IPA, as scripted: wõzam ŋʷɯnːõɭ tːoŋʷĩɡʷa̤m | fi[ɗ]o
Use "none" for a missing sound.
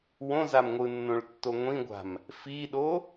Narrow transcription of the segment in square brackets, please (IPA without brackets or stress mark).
ɗ